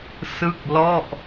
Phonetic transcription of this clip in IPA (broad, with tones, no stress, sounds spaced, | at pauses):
s ɯ˥˩ k̚ l ɔ˥˩ ʔ